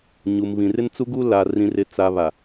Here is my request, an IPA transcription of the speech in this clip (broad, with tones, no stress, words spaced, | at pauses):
ɲu˨m βĩ˨rɪ˦nt͡su˦ɡu˦ la˨ rĩ˨rɪ˨ t͡sa˨ βa˨